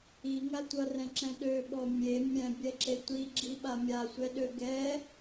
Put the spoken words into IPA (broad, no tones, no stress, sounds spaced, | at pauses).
i ŋ a tʷ ʌ r ɛ̃ ǁ ɛ̃ ɗ ø ɓ ɔ mʲ e mʲ ɛ̃ bʲ ɛ ǁ e tʷ i ɡ͡ǁ i ɓ a mʲ a sʷ ɛ ɗ ø ɡ ɛ